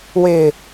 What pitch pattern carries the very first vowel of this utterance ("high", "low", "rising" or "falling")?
low